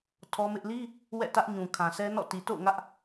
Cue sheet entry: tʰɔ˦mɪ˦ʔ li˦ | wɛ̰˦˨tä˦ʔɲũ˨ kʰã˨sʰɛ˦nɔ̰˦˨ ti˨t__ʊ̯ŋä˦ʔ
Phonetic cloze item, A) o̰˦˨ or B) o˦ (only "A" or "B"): A